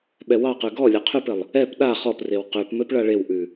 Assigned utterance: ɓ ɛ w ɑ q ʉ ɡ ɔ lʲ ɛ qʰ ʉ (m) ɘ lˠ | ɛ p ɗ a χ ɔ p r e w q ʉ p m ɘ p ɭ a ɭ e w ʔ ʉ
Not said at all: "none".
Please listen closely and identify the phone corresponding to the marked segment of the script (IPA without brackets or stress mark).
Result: p